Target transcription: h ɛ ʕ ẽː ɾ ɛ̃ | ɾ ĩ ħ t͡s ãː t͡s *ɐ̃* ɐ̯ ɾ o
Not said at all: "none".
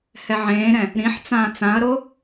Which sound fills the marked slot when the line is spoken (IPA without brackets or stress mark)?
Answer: ã